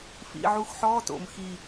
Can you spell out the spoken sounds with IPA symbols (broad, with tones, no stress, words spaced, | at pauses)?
fḭ˨˩ʕu˨˥x ħɔː˧˥˧to̰˧˩˧m xi˨˩